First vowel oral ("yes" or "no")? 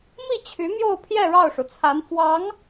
yes